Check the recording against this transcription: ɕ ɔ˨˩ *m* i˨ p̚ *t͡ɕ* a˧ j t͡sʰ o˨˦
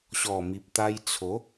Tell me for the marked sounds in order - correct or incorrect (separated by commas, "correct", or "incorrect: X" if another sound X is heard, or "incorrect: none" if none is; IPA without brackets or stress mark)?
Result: correct, incorrect: t̪